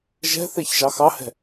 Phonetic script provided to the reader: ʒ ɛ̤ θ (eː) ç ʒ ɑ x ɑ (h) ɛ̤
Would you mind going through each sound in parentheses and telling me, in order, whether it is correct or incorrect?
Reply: incorrect, correct

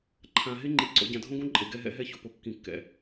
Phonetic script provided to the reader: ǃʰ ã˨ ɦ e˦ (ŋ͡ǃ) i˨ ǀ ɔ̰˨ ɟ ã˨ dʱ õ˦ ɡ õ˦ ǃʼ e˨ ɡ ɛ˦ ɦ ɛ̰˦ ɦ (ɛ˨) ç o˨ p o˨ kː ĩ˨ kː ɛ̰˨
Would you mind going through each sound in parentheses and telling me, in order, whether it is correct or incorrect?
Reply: correct, incorrect

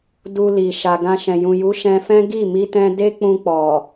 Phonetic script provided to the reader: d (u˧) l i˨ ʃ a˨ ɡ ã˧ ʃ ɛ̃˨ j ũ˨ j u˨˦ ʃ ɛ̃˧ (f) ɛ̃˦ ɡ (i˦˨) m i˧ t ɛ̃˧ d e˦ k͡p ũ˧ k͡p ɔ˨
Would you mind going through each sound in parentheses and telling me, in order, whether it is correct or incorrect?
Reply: correct, correct, correct

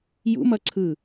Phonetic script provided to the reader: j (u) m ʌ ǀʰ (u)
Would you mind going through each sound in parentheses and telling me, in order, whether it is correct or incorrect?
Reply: incorrect, incorrect

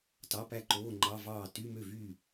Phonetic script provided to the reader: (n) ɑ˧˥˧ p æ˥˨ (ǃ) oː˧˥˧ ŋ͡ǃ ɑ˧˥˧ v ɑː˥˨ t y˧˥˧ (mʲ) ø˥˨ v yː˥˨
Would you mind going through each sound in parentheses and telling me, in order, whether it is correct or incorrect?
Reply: incorrect, correct, incorrect

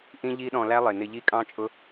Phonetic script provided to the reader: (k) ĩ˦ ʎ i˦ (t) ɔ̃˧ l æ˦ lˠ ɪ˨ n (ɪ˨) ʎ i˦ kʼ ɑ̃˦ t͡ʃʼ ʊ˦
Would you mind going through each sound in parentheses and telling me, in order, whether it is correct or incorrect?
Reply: incorrect, incorrect, incorrect

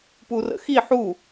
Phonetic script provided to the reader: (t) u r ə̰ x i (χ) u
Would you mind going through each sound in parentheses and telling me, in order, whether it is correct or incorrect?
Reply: incorrect, incorrect

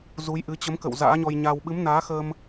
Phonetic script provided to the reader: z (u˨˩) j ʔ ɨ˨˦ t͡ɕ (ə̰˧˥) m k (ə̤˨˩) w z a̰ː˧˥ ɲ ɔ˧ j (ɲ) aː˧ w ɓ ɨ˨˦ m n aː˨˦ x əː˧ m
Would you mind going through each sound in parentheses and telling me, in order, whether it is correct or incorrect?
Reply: incorrect, incorrect, incorrect, correct

